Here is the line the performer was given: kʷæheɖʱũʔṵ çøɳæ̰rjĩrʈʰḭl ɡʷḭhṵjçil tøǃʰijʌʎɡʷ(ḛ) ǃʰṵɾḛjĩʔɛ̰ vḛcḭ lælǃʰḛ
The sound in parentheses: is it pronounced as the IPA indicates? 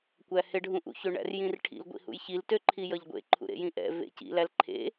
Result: yes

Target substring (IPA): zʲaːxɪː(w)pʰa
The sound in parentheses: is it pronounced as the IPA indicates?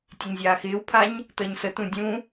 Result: yes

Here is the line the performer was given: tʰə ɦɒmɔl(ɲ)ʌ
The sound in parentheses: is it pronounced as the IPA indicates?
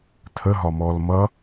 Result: no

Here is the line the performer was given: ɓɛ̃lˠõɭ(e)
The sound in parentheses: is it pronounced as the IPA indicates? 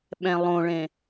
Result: no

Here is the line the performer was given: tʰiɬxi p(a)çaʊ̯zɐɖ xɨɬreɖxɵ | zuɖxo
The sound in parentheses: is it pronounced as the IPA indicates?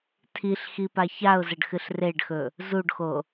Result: yes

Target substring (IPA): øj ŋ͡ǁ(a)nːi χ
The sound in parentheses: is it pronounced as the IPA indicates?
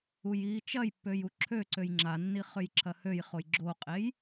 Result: yes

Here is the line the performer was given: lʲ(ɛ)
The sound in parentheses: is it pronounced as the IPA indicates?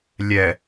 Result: yes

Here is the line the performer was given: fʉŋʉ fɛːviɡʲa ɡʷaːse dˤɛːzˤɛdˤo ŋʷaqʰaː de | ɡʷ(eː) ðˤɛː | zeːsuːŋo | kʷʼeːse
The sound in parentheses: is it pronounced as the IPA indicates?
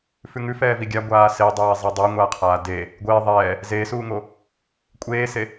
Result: yes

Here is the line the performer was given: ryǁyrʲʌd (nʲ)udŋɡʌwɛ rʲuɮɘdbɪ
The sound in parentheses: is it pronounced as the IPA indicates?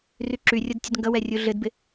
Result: no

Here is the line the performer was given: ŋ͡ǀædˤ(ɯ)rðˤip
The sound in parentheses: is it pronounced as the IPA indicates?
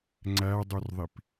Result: no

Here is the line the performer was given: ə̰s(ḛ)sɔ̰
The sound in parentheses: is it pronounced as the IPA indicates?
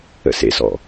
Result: yes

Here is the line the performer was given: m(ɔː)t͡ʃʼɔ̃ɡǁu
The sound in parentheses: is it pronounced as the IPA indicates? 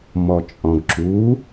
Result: no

